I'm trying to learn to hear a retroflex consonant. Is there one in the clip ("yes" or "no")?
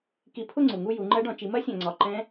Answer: yes